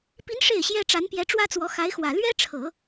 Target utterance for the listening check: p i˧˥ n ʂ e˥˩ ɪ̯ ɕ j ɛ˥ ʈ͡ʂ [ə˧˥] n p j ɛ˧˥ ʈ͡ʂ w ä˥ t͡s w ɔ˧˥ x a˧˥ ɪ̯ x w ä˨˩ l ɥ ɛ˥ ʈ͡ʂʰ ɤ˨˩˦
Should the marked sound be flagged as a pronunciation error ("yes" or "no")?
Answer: yes